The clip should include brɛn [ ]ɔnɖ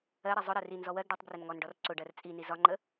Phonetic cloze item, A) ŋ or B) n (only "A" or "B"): A